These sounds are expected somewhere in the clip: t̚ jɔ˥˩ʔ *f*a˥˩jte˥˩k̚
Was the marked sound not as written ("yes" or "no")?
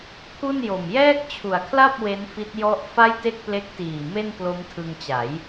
no